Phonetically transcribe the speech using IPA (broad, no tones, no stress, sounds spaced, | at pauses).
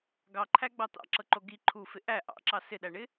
ɡ ɑ ǃʰ æ ɡ͡b ɑ t̪ ɑ̰ ǁ ɤ ǃ o ɡ i ǃʰ u f ɪ ʔ æ ʔ ɑ̰ ǁ ɑ s ɪ ɗ æ ɳ ɪ